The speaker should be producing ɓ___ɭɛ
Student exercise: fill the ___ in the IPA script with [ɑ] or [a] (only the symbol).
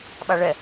a